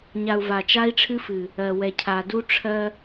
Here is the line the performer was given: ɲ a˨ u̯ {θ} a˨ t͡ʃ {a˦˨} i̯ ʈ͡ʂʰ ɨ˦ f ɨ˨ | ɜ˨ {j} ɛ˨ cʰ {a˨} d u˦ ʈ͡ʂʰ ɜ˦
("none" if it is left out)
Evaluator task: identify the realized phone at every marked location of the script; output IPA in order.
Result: v, a˦, w, a˨

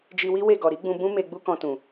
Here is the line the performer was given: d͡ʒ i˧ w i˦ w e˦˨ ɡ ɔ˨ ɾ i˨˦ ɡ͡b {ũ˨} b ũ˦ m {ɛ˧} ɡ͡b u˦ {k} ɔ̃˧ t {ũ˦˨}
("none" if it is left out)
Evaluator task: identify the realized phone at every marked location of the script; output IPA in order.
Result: ũ˧, e˧, k, ũ˨

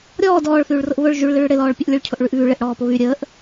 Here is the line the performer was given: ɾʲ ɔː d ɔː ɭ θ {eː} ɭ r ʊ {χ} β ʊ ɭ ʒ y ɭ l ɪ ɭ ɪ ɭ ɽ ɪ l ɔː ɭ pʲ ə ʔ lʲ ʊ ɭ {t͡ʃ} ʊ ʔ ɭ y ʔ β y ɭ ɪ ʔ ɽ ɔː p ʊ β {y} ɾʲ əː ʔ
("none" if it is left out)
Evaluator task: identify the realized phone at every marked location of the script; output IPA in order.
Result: yː, ʔ, cʰ, y

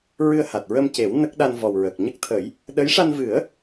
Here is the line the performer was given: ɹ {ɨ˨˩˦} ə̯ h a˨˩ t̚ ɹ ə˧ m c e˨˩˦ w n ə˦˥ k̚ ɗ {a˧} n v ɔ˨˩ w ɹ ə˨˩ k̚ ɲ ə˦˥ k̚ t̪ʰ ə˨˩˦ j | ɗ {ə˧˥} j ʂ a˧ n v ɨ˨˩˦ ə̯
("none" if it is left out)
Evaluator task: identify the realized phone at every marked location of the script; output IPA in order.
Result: ɨ˧, a˧, ə˧˥

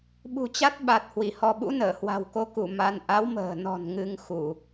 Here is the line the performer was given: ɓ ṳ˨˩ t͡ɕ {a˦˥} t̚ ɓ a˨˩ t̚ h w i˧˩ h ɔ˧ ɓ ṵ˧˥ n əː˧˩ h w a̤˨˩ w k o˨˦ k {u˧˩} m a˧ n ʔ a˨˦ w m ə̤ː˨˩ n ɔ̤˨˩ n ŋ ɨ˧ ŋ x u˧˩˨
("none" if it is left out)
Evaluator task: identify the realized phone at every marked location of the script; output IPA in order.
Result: a˦˥, u˧˩

